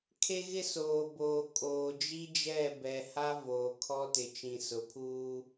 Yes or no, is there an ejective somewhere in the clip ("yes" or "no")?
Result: yes